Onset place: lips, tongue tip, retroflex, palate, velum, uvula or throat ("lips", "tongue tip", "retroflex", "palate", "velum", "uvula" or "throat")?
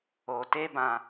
tongue tip